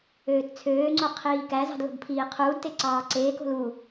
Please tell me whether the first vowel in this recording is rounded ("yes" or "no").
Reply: yes